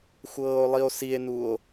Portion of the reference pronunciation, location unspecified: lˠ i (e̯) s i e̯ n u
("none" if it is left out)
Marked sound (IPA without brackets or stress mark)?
o̯